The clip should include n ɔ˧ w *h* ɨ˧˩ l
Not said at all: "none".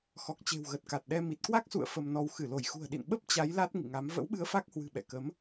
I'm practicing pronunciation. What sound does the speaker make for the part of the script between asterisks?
x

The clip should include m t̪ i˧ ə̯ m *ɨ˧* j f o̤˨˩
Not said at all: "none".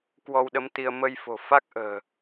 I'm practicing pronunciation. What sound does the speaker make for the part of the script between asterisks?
ə˧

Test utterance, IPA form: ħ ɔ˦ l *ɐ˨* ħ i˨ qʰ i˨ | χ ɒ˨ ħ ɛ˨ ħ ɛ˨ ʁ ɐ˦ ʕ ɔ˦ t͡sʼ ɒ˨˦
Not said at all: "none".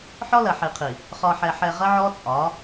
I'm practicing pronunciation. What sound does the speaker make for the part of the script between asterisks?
ɐ˨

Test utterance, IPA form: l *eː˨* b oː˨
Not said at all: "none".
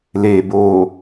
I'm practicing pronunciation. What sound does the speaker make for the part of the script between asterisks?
eː˨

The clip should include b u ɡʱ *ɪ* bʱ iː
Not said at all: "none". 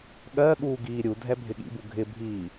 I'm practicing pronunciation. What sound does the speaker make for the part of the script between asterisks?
ɪ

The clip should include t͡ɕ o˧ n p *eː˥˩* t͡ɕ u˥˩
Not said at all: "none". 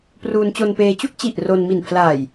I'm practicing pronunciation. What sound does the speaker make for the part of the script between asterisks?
eː˧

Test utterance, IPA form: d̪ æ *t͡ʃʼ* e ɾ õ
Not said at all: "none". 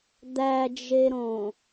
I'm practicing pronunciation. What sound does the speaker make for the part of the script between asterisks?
d͡ʒ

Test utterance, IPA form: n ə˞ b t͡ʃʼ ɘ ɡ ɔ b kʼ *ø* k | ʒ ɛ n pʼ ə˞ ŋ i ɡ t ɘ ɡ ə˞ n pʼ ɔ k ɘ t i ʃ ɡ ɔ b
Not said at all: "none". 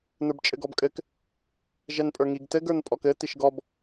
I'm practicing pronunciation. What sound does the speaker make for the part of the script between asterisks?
ɘ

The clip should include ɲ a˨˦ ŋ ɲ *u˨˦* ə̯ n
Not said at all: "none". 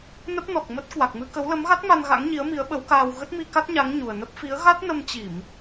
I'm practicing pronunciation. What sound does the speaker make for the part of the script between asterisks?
u˨˩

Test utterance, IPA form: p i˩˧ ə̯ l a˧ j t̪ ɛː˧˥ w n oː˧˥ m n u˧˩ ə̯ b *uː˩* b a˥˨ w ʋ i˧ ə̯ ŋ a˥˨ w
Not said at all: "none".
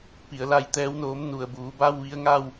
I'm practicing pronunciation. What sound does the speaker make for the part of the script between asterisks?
uː˩˧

